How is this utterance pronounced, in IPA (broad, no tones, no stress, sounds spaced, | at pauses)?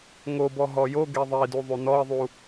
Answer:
ŋ o b ɔ ɦ ɔ j o ɡ e ðˤ i d u ðˤ y n ɔ ɪ̯ ðˤ u